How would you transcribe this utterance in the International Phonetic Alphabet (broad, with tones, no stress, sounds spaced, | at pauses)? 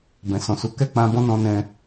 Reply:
b ɛ̃˨ s ɔ̃˨ s u˨˦ k ɛ˦˨ k͡p ã˧ b ɔ̃˦ n ɔ̃˧ n ɛ̃˧